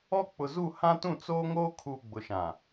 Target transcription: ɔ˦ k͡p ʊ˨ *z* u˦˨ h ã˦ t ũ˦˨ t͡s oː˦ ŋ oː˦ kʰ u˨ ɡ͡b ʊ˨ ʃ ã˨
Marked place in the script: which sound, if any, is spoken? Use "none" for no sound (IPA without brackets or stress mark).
z